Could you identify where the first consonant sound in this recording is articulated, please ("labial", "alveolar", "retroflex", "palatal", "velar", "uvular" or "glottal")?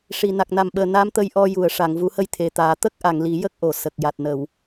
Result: retroflex